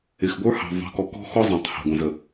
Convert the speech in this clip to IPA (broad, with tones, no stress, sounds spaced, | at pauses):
ɪ˨ x ɡʷ ə˞˦ h ɑ̤˨ v ɑ̤˨˦ k ɔ˨ k ɔ̤˦ x ɔ˦ zˤ ɑ̃˨ tˤ h ɑ̤˨ ɡʷ ɛ̃˨ z ə˨